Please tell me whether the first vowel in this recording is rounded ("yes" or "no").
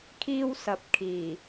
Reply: no